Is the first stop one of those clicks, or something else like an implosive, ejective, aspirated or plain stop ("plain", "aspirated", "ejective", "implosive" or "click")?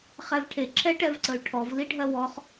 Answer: aspirated